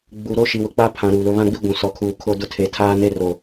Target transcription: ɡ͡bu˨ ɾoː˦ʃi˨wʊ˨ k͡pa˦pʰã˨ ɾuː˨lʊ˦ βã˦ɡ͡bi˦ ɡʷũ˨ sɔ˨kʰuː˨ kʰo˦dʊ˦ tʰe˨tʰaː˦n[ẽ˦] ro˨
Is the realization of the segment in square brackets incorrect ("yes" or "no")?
yes